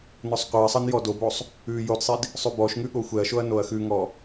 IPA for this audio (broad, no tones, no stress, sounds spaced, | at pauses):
n ɔ sˤ qʷ ɛ ɐ̯ sˤ ɤ n j ɔ d o b o sˤ | ʉ j o d sˤ i d | sˤ ʉ b ɔ ʃ ŋ ʉ ɠ o xʷ ɛ ɐ̯ ʃ o ɐ̯ n o ɐ̯ x ʉ ŋ ɔ